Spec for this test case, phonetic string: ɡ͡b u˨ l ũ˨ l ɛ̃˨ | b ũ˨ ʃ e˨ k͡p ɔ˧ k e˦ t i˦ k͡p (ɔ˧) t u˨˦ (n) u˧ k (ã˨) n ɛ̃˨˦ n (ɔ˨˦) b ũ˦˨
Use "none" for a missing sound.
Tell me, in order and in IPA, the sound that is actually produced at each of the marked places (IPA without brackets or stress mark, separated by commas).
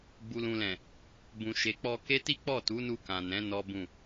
ɔ˦˨, n, ã˨, ɔ˦